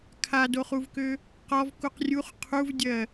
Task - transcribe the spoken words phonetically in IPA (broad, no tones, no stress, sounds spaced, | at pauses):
kʰ a d o χ u v k ø | q ɔ v k u q rʲ u χ qʰ u v dʲ ɜ